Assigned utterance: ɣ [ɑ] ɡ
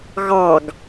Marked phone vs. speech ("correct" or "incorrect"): correct